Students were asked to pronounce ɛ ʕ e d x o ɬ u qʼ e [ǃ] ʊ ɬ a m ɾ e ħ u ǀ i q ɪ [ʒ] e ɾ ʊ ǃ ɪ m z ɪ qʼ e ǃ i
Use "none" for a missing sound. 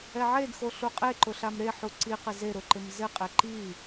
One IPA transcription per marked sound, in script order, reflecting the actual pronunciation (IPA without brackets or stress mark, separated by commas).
ǃ, z